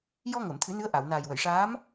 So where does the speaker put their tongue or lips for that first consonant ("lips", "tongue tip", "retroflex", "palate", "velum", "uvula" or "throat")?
palate